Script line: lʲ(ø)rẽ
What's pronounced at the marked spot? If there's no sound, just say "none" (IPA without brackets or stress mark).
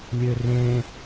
ø